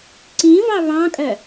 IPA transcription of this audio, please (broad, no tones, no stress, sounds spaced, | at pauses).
ǀ ĩ v ɑ β ɑ̃ kʼ œ